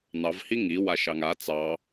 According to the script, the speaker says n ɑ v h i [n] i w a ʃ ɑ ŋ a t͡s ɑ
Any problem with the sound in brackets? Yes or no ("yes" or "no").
yes